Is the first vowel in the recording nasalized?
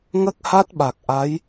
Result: no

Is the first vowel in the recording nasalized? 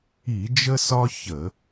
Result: no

